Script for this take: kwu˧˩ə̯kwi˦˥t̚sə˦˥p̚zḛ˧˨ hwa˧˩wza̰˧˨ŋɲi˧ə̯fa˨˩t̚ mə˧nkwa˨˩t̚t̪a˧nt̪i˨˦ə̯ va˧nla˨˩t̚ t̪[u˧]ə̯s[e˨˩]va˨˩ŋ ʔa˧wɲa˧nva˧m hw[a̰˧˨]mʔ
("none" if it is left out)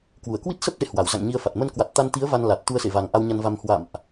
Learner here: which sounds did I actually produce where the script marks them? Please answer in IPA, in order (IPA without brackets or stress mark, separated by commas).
u˧, ḛ˧˨, a̰˧˨